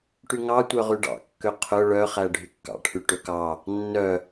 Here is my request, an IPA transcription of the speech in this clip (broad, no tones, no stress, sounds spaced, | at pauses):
ʈ y ŋ ɑ tʷ œ ʁ y ɖ ɑ̰ kː ø qʰ œ ɭ œ χ æ ɖʱ y kː ɑ̰ ʈʰ y ʈ ø k ɑ | nː œ